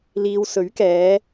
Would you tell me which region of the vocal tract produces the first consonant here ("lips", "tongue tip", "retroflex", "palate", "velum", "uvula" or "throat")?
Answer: tongue tip